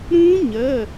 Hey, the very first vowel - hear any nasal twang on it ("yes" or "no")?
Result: yes